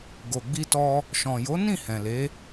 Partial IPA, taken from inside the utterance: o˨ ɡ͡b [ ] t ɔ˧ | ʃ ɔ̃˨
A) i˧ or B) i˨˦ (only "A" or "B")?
A